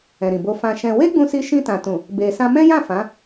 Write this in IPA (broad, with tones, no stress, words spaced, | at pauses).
ɛ̃˨ɾĩ˨bo˧ fã˧ʃɛ̃˧ we˦ɡ͡bũ˧si˧ʃĩ˧ tã˨tũ˨ | be˧ sã˧mɛ̃˦jã˦˨ fã˨˦